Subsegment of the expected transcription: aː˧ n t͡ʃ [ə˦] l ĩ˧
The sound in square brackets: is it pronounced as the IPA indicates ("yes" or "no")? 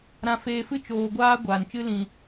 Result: no